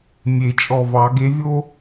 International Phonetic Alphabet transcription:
mʲe˨˩˦t͡ʃʼɔ˧˩vɑ˨˩˦ ɡe˨˦vʲo˦

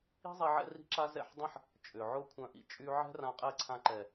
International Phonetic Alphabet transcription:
i̤˦zˤi˧ ʕɛ̰˦ri̤˦ǁa˦ zɛ̰˦˨ħdˤɐ̃˦ħ | t͡ʃʼʏ˨ʕʊ˦ kʷʰœ̃˧ʔḭ˧ t͡ʃʼy˧ ʕɛ̤˦rã˧ qʼɛ˦˨ǀʰã˧ǃɛ˨

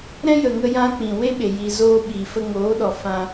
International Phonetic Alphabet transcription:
ɾɛ̃˦jə˨ŋə˧ jã˧ k͡pĩ˨we˦ɓe˨ ji˨zoː˧ ɓi˨fə˧ŋoː˨˦ɗɔ˨ fã˧

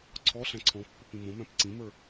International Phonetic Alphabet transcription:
ǀʰɔ ɬæ̃ǀʰɔ̃pːop ĩmõmæ̃p ǀĩmə˞

